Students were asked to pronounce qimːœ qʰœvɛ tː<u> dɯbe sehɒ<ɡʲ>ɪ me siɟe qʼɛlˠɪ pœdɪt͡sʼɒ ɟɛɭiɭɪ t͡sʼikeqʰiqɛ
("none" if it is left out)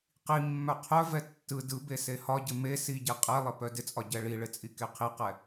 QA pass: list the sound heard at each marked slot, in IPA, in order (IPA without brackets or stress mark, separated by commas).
ɯ, ɟ